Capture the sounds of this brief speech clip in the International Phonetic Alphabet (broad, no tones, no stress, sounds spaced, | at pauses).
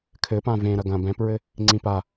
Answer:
kʰ ɘ p ã v ẽ ɾ ɐ ɡ ɐ̃ b ɛ̃ p ɹ ɘ | ŋ͡ǀ ĩ p a